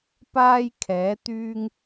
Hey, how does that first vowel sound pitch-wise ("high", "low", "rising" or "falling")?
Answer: high